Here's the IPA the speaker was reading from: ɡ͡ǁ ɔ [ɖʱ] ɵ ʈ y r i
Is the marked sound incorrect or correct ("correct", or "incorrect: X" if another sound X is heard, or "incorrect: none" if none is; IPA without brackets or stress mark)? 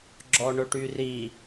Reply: incorrect: ɳ